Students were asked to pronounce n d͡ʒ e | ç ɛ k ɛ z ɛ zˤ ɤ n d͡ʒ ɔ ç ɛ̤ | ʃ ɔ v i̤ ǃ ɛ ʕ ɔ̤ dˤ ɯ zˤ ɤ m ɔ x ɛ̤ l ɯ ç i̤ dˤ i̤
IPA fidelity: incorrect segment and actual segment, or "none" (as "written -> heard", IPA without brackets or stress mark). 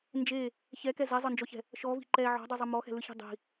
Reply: none